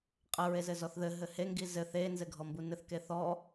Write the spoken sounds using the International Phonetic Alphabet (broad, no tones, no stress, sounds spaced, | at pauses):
qʼ ə ɹ e z ɘ z ɔ θ ð ɘ ɦ ɘ h e ŋ ɡ i z ɘ θ e n z ɘ ɡʱ ɔ m b u n ɘ θ k e θ ɔ